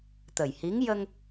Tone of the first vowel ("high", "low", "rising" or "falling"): low